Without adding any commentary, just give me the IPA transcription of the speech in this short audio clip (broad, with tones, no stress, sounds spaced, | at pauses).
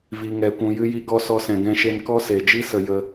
v i˨ ŋ ɛ˨ kʷ ũ˨ j ɨ˧ j i˧ ɡ ɔ˧ s ɔ˧ s ɛ̃˨ ɡ ɛ̃˧ ʃ e˧ n k ɔ˦ s e˨ d͡ʒ i˦ s ə˨ j ə˧